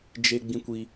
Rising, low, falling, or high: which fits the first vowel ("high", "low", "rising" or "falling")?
high